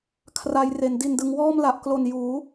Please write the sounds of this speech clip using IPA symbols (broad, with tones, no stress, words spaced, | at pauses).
kʰra˧jre˩˦n di˨˩ndɯ˩˦ŋwɔː˥˩m la˨˩ʔklo˨˩n juː˩˦